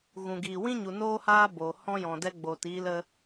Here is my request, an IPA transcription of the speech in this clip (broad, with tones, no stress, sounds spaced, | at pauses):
ɣ ũ˨ ɡ iː˨ w ĩ˦ ɲ u˨ n oː˦ h aː˦ b oː˨ h ɔ̃˦ j ɔ̃˨ d ɛ˧ ɡ͡b oː˨ t iː˧ l ə˧